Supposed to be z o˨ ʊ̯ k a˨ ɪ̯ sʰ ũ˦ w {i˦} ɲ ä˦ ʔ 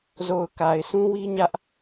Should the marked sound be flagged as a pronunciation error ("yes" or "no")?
no